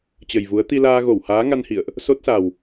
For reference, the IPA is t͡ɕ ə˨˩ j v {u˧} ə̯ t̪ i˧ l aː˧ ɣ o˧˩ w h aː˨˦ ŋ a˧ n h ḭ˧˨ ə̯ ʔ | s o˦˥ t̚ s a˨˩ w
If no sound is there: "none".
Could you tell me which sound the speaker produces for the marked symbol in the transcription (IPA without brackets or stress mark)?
u˨˦